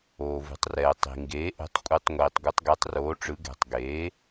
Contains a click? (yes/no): no